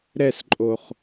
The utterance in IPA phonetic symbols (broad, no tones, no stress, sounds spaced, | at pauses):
ɾ ɛ s ǃʼ o χ